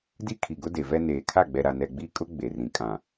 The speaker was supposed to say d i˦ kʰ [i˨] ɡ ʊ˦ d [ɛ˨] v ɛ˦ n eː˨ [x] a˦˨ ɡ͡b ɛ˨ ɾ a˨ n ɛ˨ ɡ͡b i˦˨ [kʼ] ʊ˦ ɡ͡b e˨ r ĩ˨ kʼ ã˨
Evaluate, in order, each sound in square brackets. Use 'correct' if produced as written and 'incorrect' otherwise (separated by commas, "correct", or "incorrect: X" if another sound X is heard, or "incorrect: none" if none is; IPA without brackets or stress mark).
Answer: correct, incorrect: e˨, incorrect: kʰ, correct